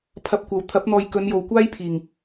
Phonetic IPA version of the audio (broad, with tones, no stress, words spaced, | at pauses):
pʰɐ˧p̚kʷɐ˨w t̪ʰɐ˨˥p̚n̪ɔː˨j kɵ˨˧njo˨wkʷaː˥jpʰiː˨˩ŋ